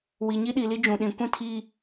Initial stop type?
implosive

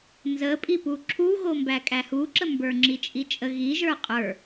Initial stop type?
ejective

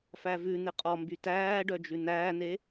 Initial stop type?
ejective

